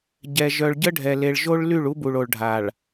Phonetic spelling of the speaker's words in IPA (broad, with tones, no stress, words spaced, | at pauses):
ɟɛ˨ ʒœ˨ɭɟə˦ɖʱɛ˨le˨ɭ ʒo˦ɭ ly˦˨ɭu˦bu˨ɭ o˨ɭɖʱa˨ɭ